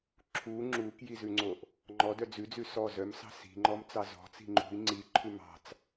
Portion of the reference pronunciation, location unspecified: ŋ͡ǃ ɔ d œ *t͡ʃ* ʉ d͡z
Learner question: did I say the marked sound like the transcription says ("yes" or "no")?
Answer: no